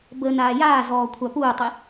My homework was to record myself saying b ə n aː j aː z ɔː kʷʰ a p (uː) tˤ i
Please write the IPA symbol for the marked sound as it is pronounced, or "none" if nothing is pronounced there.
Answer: uː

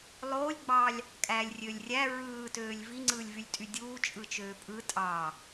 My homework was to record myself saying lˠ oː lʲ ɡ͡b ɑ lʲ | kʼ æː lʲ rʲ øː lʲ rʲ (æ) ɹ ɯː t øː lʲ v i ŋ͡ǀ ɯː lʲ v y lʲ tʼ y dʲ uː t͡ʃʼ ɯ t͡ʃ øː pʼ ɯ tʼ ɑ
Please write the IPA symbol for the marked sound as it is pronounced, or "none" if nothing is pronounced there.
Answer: æ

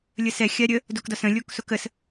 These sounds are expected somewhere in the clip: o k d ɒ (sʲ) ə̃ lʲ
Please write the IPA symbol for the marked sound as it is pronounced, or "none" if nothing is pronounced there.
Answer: s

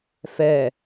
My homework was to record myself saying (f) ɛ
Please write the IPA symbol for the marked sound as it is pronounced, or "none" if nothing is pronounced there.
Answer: f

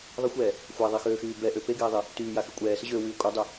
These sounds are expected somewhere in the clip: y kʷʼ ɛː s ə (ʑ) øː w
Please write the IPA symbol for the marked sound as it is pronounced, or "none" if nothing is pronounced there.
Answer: ʑ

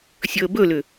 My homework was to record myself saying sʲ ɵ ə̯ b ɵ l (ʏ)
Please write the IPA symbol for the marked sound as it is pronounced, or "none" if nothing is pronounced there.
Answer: ʏ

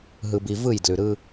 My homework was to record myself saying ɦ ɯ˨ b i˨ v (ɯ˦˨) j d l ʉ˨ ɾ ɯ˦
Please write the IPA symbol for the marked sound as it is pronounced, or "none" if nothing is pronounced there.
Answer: ɯ˦˨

